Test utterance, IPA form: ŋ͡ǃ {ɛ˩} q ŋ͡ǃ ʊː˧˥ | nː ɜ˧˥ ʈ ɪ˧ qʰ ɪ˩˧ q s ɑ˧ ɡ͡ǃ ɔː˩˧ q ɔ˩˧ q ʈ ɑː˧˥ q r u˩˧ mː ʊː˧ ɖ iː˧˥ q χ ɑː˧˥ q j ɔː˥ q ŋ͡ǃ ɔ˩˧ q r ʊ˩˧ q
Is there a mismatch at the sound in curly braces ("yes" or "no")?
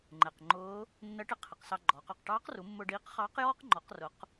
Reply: no